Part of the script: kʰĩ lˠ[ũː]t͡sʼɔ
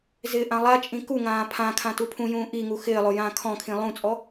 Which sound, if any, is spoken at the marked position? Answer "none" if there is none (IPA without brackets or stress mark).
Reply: ũ